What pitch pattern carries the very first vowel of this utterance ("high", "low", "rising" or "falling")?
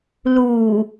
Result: low